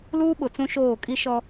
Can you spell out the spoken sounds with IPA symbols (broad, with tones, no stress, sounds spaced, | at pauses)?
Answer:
l uː˦ ɓ ʊ˨ t͡s ũ˦ ʃ oː˦˨ kʼ i˦ ʃ ɔ˦